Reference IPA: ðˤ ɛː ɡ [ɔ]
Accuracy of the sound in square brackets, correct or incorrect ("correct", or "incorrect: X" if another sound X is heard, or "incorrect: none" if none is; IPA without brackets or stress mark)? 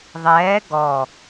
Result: correct